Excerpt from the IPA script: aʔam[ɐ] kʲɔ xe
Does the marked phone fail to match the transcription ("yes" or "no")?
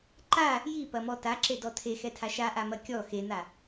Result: no